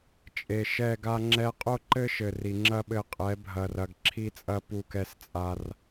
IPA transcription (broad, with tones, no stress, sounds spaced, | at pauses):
t͡ʃʼ e˨ ʃ ɛ˦˨ ɡ a˦ ŋ͡ǁ ɛ˧ qʼ o˦ ǃ ɘ˦ ʃ ɘ˨ r i˨ ŋ͡ǁ ɐ˦ ɓ ɘ˧ qʼ ɛ˨˦ bʱ ɐ˨ r ɐ˨ ɡ ǁʰ i˦ t͡sʼ ɐ˦ p u˦ k ɛ˦ s t͡sʼ a˧ r